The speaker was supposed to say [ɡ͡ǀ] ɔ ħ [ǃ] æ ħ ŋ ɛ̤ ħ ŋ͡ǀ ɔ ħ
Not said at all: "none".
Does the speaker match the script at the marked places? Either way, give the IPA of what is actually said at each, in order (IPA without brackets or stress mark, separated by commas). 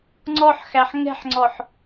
ŋ͡ǀ, x